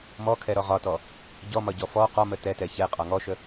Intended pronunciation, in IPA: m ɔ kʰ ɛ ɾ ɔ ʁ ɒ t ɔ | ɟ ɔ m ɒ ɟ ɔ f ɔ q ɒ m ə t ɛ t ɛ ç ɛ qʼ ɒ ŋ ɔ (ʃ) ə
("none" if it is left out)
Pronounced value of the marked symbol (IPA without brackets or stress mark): ʃ